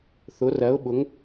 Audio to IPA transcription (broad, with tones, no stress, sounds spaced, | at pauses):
θ ʊ˩˧ r ɜ˩˧ ʊ̯ ɓ ʊ˩˧ ŋ